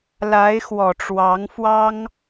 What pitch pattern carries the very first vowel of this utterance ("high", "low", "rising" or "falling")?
rising